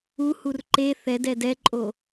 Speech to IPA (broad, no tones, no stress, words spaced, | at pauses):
uhur ǃe θɛdɛ dɛǃʼo